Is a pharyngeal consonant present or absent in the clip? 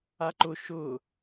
absent